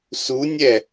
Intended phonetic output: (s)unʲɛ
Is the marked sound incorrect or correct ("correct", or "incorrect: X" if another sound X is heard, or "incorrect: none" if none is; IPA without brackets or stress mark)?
correct